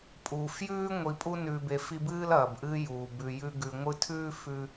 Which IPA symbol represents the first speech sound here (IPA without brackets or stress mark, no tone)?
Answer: pʼ